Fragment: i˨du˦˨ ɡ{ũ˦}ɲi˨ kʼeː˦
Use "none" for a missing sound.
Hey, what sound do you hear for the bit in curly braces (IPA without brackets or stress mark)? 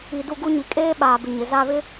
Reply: u˦